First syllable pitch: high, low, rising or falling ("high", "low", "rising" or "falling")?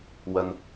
low